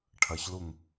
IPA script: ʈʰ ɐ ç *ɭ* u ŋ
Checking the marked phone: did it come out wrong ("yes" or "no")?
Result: yes